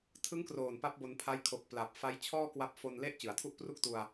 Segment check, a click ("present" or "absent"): absent